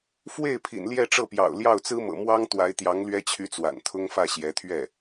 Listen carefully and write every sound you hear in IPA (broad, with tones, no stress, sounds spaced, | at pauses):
f w e˥˩ ɪ̯ pʰ ḭ˨˩ n l j ɛ˥˧ ʈ͡ʂ ɤ˥˩ p j ɑ̰˨˩ ʊ̯ l j ɑ˥˩ ʊ̯ t͡s ɹ̩˥ m ɤ̰˨˩ m w ɑ˥ ŋ t̪ w a˧˥ ɪ̯ t̪ j ɑ˧˥ ŋ l ɥ ɛ˥ t͡ɕʰ y˧˥ t͡s w a̰˨˩ n t̪ʰ ʊ˥ ŋ f ä˥˩ ɕ j ɛ˧˥ t̪ʰ ɥ ɛ˥˩